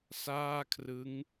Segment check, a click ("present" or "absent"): absent